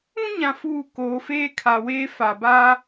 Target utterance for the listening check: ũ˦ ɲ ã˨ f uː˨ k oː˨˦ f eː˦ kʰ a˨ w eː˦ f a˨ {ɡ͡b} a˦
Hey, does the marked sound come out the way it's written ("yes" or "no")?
no